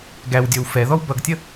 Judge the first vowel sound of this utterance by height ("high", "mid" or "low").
low